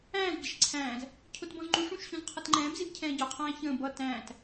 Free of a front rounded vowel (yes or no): yes